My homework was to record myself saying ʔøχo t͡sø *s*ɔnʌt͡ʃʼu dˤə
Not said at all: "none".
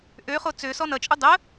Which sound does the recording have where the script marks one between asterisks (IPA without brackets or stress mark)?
s